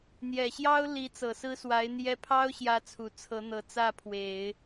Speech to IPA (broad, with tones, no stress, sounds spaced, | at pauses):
n̪ j ɛ˨˩ ɕ j ɑ˥ ʊ̯ l i˧˥ t͡s ɤ˨˩ s ɹ̩˥ s w a˧˥ ɪ̯ n̪ j ɛ˥ pʰ ɑ˥ ʊ̯ ɕ j ä˥ t͡sʰ u˨˩ t͡sʰ ɤ˧˥ n̪ ɤ˨˩ t͡s ä˥˩ pʰ w e˨˩˦ ɪ̯